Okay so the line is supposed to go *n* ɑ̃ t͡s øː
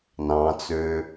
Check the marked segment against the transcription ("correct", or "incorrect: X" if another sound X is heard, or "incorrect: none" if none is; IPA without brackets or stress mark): correct